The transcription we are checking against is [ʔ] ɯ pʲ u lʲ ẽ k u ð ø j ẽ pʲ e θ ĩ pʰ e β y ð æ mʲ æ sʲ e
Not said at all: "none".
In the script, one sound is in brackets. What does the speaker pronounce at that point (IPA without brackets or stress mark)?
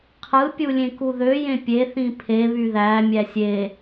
qʰ